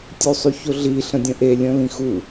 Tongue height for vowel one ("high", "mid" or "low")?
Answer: high